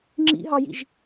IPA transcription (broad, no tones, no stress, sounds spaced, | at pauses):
ŋ͡ǁ ḭ ɦ ɑ j ḭ ʒ